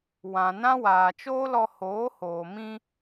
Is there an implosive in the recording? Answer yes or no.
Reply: no